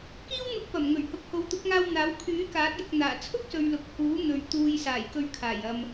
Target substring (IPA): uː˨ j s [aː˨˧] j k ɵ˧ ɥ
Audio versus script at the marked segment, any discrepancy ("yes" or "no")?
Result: yes